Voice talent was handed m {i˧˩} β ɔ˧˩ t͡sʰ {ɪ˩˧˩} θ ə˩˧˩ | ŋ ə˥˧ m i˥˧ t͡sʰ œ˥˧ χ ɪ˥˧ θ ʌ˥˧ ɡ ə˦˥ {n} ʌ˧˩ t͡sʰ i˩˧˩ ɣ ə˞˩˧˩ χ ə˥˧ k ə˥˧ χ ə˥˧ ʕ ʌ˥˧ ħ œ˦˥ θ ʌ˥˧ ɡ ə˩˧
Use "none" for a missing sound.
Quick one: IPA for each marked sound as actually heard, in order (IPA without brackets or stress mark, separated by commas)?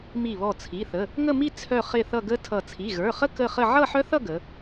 i˧˩, i˩˧˩, tʰ